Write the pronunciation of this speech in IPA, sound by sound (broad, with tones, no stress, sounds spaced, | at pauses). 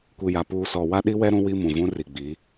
kʷ i˨ j a˨ p uː˨ s ɔ˨ w a˦ ɗ i˦ w ɛ˦ ɾ ũ˦ w i˦ m ũ˨ v ũ˦ r i˨ ɡ͡b i˨˦